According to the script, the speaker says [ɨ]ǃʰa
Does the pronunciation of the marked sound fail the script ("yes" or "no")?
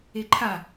yes